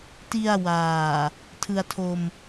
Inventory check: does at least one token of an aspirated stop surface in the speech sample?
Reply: yes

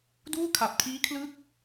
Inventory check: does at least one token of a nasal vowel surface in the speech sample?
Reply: no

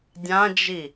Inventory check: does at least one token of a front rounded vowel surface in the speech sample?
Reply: no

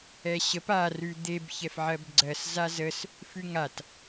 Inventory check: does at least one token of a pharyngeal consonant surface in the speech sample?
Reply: yes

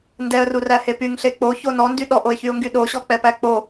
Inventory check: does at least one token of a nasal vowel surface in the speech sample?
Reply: no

